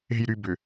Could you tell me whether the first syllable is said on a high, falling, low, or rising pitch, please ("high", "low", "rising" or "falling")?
low